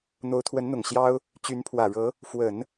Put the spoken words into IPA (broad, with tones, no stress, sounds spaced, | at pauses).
n̪ o˧˥ ʊ̯ t̪ʰ w ə˧˥ n n̪ ʊ˨˩ ŋ ɕ j ɑ˥ ʊ̯ | t͡ɕ y˧˥ n pʰ w ä˨˩ ɻ ɤ˧˥ | f w ə˨˩˦ n